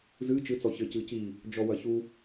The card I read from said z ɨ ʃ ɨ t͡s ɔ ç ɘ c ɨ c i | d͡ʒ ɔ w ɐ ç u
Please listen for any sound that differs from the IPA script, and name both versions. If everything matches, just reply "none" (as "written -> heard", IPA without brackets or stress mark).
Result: ʃ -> t͡ʃ